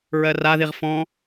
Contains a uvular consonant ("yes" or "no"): yes